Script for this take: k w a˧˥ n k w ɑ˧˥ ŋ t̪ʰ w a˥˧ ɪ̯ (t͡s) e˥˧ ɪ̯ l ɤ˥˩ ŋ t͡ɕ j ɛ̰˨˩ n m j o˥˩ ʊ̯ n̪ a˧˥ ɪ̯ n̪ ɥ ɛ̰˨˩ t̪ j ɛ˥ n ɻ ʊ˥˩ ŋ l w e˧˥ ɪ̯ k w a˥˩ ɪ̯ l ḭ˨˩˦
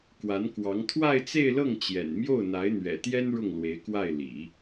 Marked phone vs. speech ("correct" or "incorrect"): correct